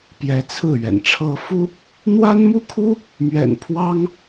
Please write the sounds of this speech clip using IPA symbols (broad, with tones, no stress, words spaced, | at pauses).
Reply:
pjɛ˧˥t͡sʰɹ̩˥˩ɥɛ̰˨˩nʈ͡ʂʰɤ˥ fu˥ | n̪wa˥n mu˥kʰu˥ | mɥɛ̰˨˩npʰwɑ˥ŋ